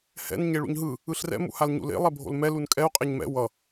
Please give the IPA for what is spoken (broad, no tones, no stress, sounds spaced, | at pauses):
h ɛ̰ n ɲ e ɭ ṵ ɲ ɦ ɯ | ɯ ɬ r ɛ̰ m ṵ h a l ɲ ṵ l ḛ lˠ ɛ bʱ o̰ l m ɛ l u n kʼ ɛ u̯ qʼ e ɲ m ɛ̰ w ʌ